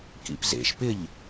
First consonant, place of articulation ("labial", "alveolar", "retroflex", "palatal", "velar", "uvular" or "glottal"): velar